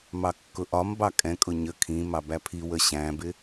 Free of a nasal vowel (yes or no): no